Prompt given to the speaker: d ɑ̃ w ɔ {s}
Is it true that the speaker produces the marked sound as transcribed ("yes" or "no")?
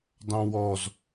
no